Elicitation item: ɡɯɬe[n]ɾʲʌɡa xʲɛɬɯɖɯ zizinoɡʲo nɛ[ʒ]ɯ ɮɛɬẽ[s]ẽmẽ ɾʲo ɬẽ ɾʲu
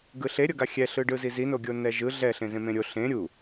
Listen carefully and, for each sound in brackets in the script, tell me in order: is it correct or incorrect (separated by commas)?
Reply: incorrect, correct, incorrect